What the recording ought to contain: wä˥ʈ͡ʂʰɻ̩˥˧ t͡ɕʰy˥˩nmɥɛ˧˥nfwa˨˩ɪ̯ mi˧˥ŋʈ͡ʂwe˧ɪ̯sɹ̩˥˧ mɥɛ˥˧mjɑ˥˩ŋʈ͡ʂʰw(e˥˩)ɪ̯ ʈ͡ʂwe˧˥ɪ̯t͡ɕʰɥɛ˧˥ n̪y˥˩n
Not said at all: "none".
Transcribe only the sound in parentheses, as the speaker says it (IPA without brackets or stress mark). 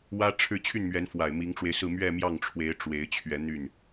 e˧˥